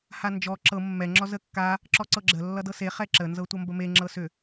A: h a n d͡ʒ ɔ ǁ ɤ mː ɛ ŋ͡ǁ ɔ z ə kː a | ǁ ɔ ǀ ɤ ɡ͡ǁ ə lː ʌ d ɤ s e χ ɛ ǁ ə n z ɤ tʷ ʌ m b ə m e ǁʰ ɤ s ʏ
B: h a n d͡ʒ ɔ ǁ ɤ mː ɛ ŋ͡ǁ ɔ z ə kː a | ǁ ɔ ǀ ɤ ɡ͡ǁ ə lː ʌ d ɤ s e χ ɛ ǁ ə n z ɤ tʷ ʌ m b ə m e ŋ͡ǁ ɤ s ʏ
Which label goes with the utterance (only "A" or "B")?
B